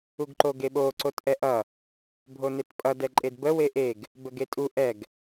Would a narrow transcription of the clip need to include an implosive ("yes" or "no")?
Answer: yes